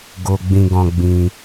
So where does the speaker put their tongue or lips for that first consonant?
velum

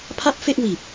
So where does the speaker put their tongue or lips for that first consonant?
lips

